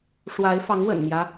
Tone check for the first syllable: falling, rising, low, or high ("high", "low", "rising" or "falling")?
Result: rising